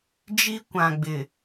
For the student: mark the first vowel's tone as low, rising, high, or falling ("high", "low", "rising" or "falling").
high